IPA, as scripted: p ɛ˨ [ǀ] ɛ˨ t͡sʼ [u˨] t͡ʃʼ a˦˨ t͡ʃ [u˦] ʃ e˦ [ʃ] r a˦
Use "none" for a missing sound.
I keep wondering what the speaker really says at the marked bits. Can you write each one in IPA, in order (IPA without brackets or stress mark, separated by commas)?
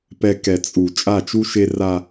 k, u˨, u˦, none